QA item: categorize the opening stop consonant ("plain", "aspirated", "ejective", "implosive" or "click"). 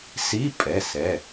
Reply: ejective